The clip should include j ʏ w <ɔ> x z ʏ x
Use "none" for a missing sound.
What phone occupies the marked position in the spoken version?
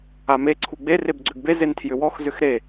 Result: ɔ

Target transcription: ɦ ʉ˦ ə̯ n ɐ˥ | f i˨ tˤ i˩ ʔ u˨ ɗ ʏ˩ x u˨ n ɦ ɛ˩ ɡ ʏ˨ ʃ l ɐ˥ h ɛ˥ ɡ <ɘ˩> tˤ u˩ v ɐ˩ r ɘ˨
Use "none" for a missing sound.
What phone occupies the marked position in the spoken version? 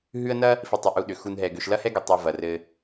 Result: ɛ˩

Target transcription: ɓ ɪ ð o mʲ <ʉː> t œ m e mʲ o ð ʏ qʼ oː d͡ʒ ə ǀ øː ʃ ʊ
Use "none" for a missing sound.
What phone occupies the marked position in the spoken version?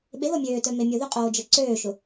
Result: øː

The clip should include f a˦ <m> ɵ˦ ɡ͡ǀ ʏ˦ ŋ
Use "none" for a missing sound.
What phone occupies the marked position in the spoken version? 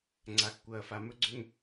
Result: m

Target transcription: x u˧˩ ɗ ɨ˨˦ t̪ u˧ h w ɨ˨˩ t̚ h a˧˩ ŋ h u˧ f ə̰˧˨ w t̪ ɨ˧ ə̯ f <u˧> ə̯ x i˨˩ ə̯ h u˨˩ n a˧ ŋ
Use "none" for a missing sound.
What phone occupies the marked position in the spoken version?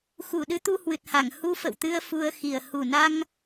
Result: u˧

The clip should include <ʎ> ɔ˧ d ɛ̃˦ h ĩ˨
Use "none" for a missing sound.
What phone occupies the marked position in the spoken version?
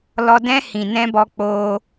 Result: l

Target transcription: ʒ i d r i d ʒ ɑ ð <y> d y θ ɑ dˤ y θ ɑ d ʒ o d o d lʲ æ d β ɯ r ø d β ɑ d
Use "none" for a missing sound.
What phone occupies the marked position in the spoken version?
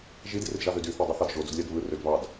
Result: ø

